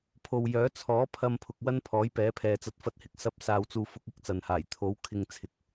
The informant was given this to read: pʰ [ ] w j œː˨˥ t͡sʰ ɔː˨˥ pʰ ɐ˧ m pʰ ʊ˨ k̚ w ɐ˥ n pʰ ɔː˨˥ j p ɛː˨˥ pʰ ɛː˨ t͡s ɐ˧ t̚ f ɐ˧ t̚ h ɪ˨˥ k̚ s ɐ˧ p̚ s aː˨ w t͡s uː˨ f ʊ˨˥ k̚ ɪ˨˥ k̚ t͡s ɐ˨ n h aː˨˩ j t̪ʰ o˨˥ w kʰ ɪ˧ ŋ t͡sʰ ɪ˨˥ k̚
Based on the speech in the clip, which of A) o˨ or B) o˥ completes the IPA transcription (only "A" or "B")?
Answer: A